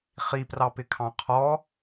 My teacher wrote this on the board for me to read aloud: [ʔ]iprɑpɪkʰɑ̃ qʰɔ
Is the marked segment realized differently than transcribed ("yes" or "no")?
yes